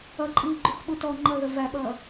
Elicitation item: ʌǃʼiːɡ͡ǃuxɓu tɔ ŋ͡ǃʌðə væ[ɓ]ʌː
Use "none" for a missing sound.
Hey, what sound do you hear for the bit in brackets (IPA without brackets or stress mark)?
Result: ɓ